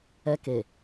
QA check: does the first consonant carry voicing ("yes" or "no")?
no